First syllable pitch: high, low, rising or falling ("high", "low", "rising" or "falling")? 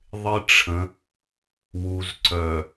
high